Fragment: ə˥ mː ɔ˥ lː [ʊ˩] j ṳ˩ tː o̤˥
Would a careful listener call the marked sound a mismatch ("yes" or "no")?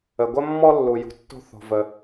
yes